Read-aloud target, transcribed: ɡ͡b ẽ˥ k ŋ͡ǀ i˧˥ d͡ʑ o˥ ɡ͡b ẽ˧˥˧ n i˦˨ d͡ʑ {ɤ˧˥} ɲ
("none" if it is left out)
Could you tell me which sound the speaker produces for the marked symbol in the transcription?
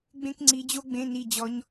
ɔ˧˥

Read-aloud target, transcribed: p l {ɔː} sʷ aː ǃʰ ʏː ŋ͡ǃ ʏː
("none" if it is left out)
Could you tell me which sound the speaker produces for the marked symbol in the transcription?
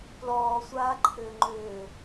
ɔː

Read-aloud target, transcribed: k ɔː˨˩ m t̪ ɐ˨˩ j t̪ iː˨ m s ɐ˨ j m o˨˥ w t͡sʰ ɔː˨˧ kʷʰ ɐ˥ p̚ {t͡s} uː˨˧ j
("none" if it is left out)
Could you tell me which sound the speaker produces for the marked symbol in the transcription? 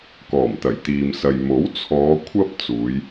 t͡s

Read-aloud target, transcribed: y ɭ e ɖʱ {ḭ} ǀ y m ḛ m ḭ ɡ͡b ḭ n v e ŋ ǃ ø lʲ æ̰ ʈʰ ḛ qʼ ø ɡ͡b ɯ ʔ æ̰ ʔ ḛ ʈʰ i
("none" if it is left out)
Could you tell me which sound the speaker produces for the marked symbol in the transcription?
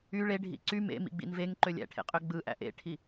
ḭ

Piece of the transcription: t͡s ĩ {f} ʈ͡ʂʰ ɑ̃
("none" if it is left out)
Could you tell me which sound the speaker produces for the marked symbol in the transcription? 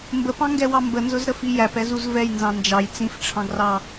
f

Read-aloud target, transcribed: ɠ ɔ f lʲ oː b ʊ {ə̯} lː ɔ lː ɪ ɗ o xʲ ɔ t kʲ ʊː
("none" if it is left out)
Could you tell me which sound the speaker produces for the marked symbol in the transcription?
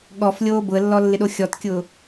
ə̯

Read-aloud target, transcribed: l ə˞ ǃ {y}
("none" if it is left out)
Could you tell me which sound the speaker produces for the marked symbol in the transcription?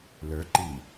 i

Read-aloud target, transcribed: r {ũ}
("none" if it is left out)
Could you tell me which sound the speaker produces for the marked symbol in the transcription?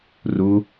u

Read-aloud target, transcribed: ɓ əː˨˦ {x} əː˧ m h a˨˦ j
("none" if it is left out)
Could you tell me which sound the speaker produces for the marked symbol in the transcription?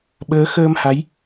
x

